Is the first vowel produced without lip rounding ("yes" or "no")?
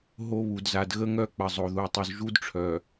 no